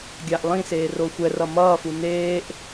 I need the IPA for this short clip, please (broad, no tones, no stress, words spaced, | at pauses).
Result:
ɡʲaʔlˠĩseː roxʷɛrʌ mʌːfu neːʔ